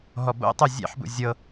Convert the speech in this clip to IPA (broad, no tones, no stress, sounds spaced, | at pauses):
ɦ ɔ b o̰ tˤ u zʲ ḛ ħ b ṵ zʲ ɤ